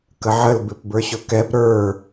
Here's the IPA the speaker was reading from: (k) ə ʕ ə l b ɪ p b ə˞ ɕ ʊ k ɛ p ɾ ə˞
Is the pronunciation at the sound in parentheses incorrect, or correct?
correct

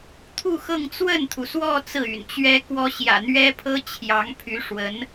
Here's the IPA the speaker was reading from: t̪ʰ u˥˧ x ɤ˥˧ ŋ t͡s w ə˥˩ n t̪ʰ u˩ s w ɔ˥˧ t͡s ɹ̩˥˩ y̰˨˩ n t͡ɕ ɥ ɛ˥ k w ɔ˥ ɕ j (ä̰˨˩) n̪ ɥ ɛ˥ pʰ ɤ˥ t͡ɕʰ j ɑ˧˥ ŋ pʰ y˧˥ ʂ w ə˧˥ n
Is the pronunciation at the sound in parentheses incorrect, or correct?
correct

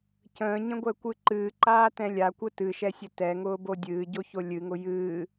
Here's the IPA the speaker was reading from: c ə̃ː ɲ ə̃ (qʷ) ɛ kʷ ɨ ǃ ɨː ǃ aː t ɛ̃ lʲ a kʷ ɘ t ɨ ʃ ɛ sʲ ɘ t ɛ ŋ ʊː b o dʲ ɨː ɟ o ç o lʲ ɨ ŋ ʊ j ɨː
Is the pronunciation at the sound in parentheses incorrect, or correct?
incorrect: ɡʷ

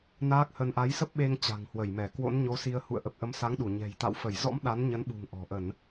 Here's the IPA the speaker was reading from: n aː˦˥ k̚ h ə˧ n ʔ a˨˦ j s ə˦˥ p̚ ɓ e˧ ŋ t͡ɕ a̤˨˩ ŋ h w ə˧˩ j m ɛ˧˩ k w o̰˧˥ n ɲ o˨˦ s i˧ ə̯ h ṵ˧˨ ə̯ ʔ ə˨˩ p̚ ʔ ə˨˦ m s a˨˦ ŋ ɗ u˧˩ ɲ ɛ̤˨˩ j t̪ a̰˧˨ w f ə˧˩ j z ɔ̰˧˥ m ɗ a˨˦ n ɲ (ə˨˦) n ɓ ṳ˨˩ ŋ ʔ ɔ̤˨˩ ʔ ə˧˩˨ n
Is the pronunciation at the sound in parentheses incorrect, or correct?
correct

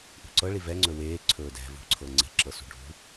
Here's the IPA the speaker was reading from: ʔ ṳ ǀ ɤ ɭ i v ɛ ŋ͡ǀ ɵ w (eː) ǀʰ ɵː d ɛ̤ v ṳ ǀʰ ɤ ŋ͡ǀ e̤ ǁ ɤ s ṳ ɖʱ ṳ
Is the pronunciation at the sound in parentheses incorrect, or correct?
correct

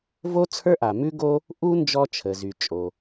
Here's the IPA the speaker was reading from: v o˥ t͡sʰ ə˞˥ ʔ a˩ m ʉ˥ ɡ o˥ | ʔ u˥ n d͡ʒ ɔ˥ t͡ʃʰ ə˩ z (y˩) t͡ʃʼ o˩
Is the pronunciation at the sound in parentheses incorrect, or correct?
correct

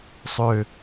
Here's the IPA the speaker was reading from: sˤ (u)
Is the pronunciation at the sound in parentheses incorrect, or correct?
incorrect: ø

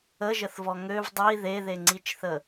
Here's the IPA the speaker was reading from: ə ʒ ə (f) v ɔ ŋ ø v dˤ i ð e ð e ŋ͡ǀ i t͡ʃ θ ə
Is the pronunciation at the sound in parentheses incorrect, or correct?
incorrect: θ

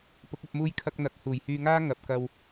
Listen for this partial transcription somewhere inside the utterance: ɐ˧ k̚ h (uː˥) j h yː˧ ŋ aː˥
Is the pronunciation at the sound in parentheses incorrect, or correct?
incorrect: uː˨˩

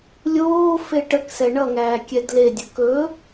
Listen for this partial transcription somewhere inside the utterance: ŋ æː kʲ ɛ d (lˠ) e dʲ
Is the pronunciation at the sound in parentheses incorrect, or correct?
incorrect: l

